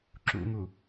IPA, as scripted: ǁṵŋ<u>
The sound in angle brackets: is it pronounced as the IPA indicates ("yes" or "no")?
yes